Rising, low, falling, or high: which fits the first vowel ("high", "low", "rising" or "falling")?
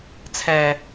low